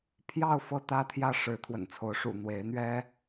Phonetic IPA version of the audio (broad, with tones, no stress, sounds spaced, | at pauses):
pʰ j ɑ˥˨ ʊ̯ f ɤ˦ t̪ ä˦ t̪ʰ j ä˥˨ ʂ ɻ̩˨˦ t̪ʰ w ə̰˨˩ n t͡sʰ o˨˦ ʊ̯ ʂ ṵ˨˩ n̪ w e˨˦ ɪ̯ n̪ ɥ ɛ˦